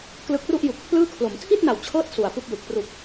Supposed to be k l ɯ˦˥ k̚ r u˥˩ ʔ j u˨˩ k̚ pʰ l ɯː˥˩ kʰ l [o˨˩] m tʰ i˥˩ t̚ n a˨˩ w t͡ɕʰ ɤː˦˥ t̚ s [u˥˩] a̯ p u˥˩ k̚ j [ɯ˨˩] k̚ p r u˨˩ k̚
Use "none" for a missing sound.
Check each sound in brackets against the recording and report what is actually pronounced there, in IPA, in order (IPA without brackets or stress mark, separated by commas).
o˩˦, u˨˩, ɯ˨˩